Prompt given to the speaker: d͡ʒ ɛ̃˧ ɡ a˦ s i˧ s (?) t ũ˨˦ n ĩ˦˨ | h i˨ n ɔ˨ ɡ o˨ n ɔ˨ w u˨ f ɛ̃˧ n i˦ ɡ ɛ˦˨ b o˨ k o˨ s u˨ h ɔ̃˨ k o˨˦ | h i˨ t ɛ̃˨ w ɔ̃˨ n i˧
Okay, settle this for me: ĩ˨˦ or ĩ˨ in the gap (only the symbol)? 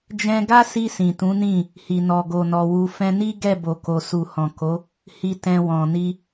ĩ˨